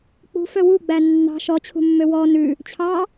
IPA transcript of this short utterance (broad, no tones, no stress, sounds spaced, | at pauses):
k͡p ṳ f œ w u ɡ͡b æ nː ɑ̤ ʃ ɔ t͡ɕʰ ṳ mː ø w ɔ n ʉ | t͡ɕʰ ɑ